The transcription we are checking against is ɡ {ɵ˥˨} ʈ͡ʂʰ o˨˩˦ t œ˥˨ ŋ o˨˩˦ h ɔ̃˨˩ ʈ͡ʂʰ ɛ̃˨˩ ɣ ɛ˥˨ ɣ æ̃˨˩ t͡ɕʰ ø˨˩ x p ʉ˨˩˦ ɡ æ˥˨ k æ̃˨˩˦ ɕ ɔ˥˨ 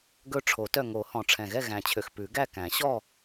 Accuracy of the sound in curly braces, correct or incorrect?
correct